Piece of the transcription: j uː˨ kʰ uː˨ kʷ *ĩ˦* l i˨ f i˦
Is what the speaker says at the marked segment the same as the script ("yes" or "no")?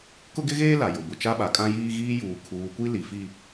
no